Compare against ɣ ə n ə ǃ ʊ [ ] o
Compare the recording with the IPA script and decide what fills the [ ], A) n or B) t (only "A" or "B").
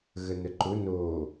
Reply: A